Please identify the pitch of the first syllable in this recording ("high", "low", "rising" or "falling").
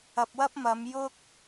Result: low